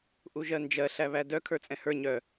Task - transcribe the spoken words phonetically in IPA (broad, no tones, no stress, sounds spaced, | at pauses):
ʔ u ʒ ɜ n d͡ʒ ɜ ɬ æ β æ d œ kʰ ə˞ t͡sʼ ɛ̃ h ə˞ ɲ œ